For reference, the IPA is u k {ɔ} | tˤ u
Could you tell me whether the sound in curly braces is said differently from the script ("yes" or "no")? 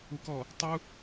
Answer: no